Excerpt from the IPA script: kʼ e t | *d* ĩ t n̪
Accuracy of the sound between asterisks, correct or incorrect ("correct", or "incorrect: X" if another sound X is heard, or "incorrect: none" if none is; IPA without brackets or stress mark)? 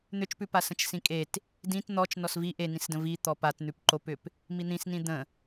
correct